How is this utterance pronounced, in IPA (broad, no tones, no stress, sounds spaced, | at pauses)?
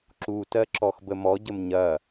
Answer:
ǁ u t ɜ ǁ ɔ x b ə m ɔ ɟ ə m ɲ ɐ